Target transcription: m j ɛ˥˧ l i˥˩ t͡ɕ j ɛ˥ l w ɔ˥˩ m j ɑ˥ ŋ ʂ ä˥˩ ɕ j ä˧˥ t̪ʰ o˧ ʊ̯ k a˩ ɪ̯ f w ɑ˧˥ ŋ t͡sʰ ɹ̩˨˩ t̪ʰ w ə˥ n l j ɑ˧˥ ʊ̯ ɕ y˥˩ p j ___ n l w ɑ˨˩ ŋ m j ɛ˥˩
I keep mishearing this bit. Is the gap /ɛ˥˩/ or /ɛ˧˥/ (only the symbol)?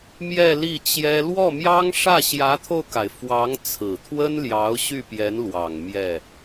ɛ˧˥